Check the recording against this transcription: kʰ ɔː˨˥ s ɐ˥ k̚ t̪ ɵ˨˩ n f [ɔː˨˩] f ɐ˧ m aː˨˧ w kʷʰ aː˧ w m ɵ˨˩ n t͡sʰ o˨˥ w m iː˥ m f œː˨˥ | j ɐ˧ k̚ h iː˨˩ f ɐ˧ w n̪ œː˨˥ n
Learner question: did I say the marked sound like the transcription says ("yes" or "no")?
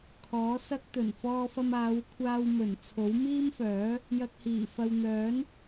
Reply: no